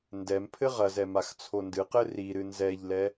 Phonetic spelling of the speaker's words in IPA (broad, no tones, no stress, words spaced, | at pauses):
ndɛm pʰɘʁɐzɛ maxt͡sʰondɨqɘ ri ɾɨnzɛʎlɛ